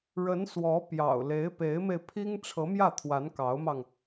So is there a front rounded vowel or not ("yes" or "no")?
no